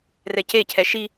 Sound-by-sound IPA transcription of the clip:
r ɛ c e cʰ ɛ ʃ i

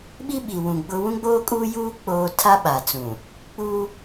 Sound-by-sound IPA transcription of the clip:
ɓ i˦ ɓ i˨ w ũ˨ ɡ͡b ʊ˦ w ũ˦ ɡ͡b oː˦ kʼ uː˦ j uː˦ k͡p oː˦ tʰ a˦ ɓ a˨ t͡s ũ˨ | k͡p uː˦

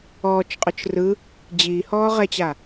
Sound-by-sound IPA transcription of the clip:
ɔː t͡ʃ qʼ œ t͡ʃ r ɯ | d͡ʑ iː h ɔː ʁ ɛ t͡ɕ a

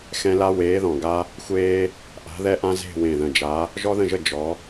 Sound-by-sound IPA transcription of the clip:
x ɛ̃˦ l a˦ w eː˨˦ ð ɔ̃˨˩ ɡ a˦ | xʷ eː˦ | ʔ a̤˨˦ ð ɛ˦ ʔ ã˦ z e̤˦˨ w ẽ˨˩ ð ə̃˨˩ d͡ʒ a˨˦ | ʒ ɔ˦ ð ə̃˦˨ ʒ ə˦˨ d͡ʒ ɔ˨˦

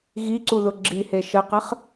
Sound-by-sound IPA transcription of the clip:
ɣ i ǀ u ð ʊ ɡ͡ǁ i h e ʃ ə q ə χ

